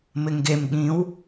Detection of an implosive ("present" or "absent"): present